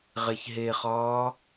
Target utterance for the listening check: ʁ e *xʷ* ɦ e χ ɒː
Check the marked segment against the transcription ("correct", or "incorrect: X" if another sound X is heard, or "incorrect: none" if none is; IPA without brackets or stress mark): incorrect: ç